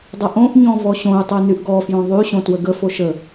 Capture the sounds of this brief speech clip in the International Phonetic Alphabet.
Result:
dˤəʔõʔɲɔ̃ vɔɕõy̯tˤy nyʔɡɔfjõ ðˤy ɕõtwəɡə foʃə

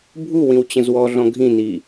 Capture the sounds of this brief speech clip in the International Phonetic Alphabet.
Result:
bʱu wĩwt͡ɕə̃zwɔɮɔ̃ ɡʱĩni

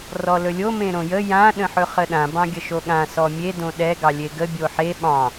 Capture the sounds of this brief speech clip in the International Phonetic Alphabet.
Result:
rɔlɵlʲo mẽɾõjə jã ɗə̃ħɵχəɗã bɑ̃ɡʲəʃoɠã sɔmʲe dõɗɛ ɡɑlʲeɡə bʲoħe ɓɑ̃

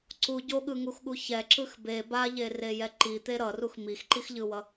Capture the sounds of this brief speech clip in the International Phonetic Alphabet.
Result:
ǀu ɟoɠɯŋuxɠu çɛǁɯx be baʎerejɛ ǃit̪e ɾʌrux mixǃixʎɯwʌ

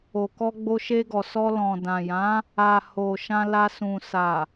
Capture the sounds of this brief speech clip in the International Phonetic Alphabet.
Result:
o˨kɔ˧ ɡ͡bo˧ʃe˧ɡɔ˨sɔ˧ lɔ̃˨dã˨jã˨˦ | a˨ ho˨ ʃã˧la˧sũ˨ sa˨

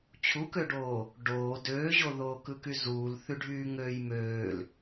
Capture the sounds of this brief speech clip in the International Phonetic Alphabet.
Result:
t͡ɕʰukøɖoː | ɖoː døːʑoðoː kɯkyzuːl θyɖʱyːŋøːjmøːl

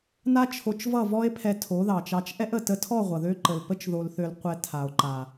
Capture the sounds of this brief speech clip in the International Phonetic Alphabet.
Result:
na˦t͡ʃʰo˧t͡ʃvʌ˦˨ vɔ˦e̯pʰɛ˧ tʰo˨˦ðɑ˨t͡ʃɑ˧t͡ʃ ʔɛ˦ʔə˨ tə˧tʰɔ˦˨ ʁʷʌ˨ðø˦ǃə˨l pə˦t͡ʃðo˧lθø˧lqʷɛ˧ tʰa˨o̯ǃa˨

